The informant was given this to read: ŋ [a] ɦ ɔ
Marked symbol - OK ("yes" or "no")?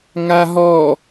yes